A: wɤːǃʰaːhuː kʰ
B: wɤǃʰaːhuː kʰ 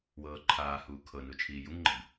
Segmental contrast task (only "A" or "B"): A